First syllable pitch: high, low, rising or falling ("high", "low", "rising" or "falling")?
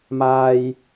low